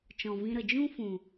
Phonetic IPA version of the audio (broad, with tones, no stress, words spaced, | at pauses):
t͡ʃɔ̃˨vĩ˧ɾə˨ d͡ʒũ˦ fũ˨